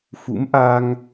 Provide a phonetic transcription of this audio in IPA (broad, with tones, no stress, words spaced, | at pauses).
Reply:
fṵ˧˥mʔa˧ŋ